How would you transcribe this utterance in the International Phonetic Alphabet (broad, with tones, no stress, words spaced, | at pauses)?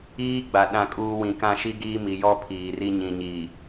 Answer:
iː˦ɡ͡ba˨ ɗã˦˨kʼuː˦ wĩ˨kã˦˨ʃi˦ɡiː˦ mi˨jɔ˦ pʰiː˨ri˦ ɲĩ˨ɲiː˨